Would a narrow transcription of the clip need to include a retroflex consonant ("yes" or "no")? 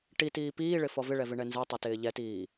yes